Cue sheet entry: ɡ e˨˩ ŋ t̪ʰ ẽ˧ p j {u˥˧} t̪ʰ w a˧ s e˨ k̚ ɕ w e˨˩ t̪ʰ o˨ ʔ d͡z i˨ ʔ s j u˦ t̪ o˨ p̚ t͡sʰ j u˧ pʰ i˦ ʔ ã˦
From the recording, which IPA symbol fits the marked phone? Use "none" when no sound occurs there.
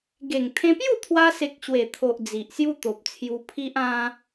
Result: u˥˧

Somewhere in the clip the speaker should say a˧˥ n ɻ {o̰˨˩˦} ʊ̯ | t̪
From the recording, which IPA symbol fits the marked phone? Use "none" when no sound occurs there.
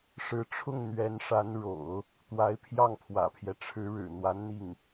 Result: o̰˨˩˦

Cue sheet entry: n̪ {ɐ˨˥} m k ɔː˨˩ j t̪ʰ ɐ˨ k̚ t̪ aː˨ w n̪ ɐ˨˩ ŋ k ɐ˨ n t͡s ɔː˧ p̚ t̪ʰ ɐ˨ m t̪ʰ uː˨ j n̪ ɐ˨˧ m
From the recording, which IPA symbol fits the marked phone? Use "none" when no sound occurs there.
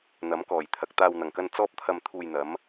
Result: ɐ˨˥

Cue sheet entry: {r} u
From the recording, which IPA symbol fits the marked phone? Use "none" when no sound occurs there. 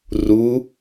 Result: r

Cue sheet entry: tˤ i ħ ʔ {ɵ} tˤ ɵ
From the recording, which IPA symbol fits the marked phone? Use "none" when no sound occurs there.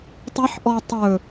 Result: ɔ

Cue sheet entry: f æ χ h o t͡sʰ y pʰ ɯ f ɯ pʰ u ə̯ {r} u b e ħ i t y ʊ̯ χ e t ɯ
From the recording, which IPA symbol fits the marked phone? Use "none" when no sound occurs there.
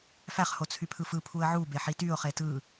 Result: ʕ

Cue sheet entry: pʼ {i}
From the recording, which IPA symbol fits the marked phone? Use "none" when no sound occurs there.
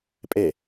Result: e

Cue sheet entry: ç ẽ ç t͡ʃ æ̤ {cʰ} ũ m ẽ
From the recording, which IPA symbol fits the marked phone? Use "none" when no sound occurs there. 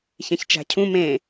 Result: cʰ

